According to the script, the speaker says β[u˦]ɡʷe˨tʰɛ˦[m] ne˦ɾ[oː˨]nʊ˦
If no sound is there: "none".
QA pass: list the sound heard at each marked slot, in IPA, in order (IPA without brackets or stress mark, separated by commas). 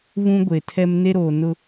ũ˦, m, oː˨